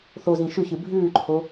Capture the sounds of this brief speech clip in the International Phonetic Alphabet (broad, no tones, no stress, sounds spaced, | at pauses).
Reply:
θ o z ĩ ʃ ʉ ç ɨ bʱ ʉː ǃʰ o